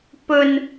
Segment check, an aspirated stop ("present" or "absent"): absent